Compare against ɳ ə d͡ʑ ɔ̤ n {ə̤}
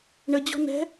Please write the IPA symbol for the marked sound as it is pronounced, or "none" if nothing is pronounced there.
ɛ̤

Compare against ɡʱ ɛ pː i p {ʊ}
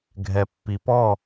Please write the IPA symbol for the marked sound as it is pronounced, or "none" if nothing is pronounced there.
ɔ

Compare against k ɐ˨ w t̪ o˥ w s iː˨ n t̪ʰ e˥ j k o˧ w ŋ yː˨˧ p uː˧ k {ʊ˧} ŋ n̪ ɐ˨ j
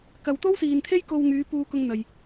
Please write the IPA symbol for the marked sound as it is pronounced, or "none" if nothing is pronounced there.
ʊ˧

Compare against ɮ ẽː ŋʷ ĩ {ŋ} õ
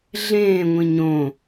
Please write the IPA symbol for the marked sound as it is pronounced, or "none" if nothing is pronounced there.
ɲ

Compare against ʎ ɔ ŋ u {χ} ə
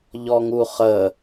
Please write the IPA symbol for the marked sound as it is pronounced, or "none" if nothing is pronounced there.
χ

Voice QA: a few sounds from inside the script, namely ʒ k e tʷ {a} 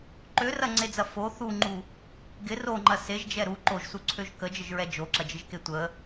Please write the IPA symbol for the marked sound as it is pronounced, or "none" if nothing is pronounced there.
ə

